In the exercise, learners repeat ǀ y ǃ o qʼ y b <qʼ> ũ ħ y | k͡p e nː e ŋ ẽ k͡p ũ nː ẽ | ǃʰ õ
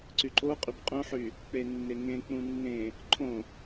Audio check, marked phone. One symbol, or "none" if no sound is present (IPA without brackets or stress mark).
qʼ